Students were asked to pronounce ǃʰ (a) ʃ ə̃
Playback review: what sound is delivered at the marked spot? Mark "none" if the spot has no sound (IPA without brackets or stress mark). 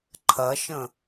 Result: ɐ